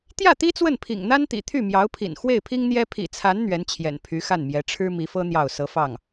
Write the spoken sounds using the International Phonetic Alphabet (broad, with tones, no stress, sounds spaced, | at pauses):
t̪ j ä˥˩ t̪ i˥ t͡s w ə˥˩ n pʰ ḭ˨˩ ŋ n̪ a˥ n t̪ ḭ˨˩ t̪ʰ y˥˩ m j ɑ˧˥ ʊ̯ pʰ ḭ˨˩ n x w e˥˩ ɪ̯ pʰ i˥ ŋ n̪ j ɛ˥ pʰ ḭ˨˩ t͡sʰ a˧˥ n n̪ ɥ ɛ˧˥ n t͡ɕʰ j ɛ̰˨˩ n pʰ y˧˥ x a˥˩ n m j ɛ˧˥ ʈ͡ʂʰ ɻ̩˥ m i˧˥ f ɤ˥ n̪ j ɑ˥˩ ʊ̯ s ɤ˧˥ f ɑ˥˩ ŋ